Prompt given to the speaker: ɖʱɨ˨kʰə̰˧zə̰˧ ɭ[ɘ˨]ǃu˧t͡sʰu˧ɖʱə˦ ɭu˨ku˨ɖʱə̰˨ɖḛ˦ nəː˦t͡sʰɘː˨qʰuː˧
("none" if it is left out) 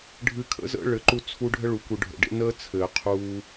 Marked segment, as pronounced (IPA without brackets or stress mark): ɘ˨